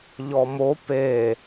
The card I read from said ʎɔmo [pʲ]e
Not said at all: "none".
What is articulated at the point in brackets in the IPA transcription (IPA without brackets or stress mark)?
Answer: p